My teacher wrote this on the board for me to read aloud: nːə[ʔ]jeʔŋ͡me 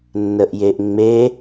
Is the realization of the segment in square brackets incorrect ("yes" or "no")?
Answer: no